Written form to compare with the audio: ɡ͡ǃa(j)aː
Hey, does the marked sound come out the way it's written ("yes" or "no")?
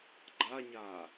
no